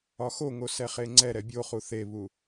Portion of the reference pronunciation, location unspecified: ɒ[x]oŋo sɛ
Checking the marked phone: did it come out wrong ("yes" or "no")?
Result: no